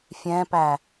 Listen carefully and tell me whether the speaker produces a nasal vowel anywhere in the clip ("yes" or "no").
yes